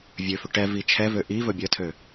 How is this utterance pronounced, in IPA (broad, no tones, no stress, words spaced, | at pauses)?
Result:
vʲøfʏ ʈɛ vit͡ʃʰɛvø ʔivɵ bʲətʰø